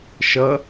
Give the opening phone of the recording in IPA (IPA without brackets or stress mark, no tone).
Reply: ʃ